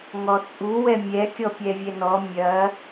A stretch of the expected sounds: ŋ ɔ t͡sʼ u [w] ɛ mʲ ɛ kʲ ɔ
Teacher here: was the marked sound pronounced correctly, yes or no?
yes